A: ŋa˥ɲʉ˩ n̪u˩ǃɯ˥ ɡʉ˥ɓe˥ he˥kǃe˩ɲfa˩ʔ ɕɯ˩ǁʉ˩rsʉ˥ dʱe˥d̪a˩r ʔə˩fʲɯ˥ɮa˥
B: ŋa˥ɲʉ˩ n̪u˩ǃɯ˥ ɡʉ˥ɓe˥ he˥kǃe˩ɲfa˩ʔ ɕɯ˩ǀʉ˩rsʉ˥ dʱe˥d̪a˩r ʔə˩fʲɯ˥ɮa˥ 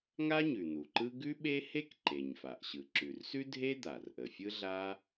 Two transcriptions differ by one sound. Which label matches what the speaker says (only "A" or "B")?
A